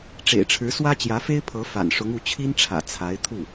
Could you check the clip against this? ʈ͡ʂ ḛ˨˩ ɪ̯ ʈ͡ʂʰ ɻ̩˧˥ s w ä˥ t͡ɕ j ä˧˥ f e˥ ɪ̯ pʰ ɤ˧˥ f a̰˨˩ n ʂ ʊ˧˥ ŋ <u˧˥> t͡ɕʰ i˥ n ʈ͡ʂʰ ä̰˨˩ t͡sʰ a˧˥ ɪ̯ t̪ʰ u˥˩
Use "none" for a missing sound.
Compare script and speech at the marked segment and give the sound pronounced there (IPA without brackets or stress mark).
u˧˥